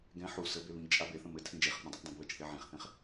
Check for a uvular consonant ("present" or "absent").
present